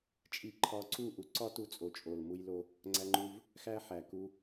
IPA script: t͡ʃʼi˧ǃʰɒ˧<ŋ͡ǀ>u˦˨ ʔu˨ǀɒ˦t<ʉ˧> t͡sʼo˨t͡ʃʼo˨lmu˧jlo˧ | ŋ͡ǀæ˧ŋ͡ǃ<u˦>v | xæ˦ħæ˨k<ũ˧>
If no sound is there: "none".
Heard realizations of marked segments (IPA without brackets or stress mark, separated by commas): ǀ, u˧, u˧, u˧